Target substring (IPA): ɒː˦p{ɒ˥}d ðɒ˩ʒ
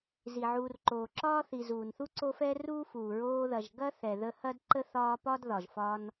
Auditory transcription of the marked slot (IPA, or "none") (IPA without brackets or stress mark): ɒ˥